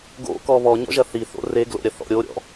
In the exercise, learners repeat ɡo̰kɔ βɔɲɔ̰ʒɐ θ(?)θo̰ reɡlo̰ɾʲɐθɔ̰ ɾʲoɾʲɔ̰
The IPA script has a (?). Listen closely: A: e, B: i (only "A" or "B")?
B